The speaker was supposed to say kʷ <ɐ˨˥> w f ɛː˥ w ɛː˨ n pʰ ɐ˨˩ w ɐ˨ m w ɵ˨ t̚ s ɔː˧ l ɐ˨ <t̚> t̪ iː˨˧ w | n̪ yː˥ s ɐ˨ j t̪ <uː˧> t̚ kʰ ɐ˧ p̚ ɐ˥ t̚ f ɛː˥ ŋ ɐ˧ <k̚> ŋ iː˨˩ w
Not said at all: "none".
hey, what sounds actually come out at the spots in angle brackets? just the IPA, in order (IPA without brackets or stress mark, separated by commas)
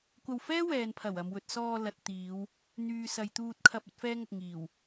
ɐ˧, t̚, uː˧, k̚